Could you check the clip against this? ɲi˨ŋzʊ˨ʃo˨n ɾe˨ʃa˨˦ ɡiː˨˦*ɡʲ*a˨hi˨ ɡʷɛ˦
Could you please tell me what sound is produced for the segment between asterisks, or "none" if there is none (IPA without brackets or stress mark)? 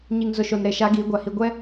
ɡʷ